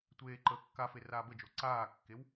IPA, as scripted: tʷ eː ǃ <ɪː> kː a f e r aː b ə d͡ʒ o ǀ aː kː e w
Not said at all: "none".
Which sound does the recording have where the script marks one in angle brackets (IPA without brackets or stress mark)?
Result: əː